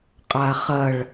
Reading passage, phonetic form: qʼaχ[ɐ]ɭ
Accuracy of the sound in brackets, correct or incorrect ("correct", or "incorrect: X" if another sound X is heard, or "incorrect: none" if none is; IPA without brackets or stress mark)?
correct